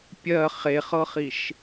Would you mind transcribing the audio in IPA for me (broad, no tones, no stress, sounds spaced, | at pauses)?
pʲ ɜ χ e χ ɤ χ i ʃ